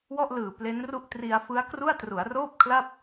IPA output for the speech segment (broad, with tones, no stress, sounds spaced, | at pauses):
w ɔ˥˩ ʔ l ɯː˨˩ p l e˦˥ n r u˥˩ ʔ t r i˧ a̯ f ɯ˦˥ a̯ k r u˥˩ a̯ t r u˩˦ a̯ r oː˥˩ p̚ kʰ l a˥˩ p̚